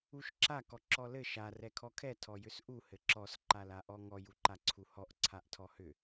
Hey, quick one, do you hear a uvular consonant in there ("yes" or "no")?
no